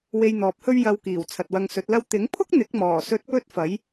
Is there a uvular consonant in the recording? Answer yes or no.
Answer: no